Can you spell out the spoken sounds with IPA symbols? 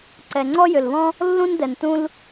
ǀ ɛ˩ ŋ͡ǀ ɔ˥ j ʏ˩ l β ɔ̃˥ | lː ũ˥ n d ɛ˩ n t ũ˥ l

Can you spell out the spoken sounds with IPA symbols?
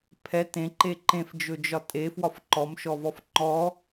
pʰ ɛ t ẽ ǃ e ǃ ẽ f d͡ʒ ɵ d͡ʒ ɒ tʼ e f w ɒ f ǃ ɔ m ʃ ɔ v ɔ f ŋ͡ǃ ɔ

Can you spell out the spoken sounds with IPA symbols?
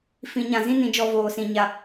f ĩ˦ ɲ ã˧ z ĩ˦ n ĩ˧ d͡ʒ ɔ˦ v oː˧ s ĩ˧ ɲ a˧

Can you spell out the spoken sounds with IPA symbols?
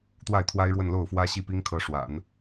t̪ w a˥˩ ɪ̯ t̪ʰ w a˥ ɪ̯ ɻ w ə˥˧ n l o˥˩ ʊ̯ f w ä˥ ɕ i˥˩ p i˥ ŋ kʰ ɤ˧˥ ʂ w a̰˨˩˦ n

